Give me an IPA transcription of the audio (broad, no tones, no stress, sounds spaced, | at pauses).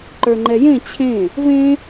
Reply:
ǃ ə˞ ŋ͡ǃ ɛ j ẽ t͡ɕʰ ẽ | v ẽ